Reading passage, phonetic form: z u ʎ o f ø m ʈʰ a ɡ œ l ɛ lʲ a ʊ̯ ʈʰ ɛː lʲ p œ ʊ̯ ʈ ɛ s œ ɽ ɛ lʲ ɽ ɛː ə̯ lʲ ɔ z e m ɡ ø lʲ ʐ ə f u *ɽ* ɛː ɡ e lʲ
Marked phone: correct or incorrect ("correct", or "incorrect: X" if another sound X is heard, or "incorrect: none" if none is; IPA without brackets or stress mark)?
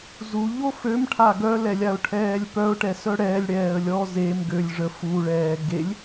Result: incorrect: ɭ